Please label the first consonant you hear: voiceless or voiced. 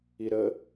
voiced